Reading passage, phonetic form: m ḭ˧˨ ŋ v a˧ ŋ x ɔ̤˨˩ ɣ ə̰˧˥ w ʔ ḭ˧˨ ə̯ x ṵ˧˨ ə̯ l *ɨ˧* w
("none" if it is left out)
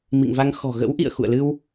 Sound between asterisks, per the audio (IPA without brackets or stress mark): ɨ˧